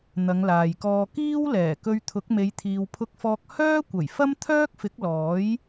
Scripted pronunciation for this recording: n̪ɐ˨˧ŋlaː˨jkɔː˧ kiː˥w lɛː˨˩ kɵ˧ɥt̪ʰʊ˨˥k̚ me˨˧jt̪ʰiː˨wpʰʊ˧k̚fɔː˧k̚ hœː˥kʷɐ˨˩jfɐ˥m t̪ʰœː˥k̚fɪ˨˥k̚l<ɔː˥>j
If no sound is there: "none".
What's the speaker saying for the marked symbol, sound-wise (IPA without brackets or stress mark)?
ɔː˨˥